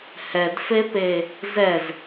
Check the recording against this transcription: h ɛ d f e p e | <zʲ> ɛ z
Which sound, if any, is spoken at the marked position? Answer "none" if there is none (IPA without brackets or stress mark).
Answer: z